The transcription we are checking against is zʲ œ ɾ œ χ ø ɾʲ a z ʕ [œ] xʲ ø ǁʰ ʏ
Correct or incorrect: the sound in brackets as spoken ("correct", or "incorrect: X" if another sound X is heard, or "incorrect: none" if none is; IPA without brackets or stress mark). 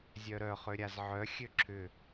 correct